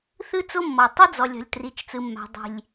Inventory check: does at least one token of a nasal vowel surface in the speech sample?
no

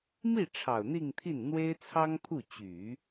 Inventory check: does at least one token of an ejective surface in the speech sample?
no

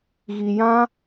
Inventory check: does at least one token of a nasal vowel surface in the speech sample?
yes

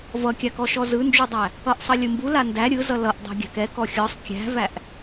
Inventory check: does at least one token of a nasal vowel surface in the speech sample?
no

